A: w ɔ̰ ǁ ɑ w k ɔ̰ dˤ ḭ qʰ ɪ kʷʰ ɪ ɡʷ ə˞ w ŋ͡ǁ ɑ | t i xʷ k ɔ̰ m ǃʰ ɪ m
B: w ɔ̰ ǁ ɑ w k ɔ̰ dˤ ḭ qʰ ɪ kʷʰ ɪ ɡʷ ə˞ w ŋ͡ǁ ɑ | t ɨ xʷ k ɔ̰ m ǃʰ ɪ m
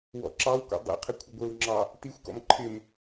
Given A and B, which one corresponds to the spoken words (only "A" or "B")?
A